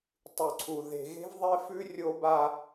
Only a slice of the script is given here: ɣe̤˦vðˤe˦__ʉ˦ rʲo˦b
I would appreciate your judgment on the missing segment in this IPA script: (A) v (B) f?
B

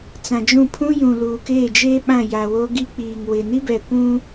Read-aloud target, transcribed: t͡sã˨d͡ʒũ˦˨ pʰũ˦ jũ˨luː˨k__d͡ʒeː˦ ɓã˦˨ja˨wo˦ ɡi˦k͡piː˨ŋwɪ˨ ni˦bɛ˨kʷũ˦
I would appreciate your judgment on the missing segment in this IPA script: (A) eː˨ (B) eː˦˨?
B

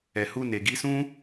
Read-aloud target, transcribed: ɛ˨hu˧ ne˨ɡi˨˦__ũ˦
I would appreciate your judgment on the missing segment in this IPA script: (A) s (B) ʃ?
A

